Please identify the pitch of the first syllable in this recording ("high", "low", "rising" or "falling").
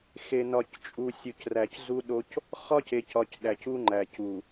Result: low